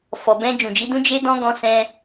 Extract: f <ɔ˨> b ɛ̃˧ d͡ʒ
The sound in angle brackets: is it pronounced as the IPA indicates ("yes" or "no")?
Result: yes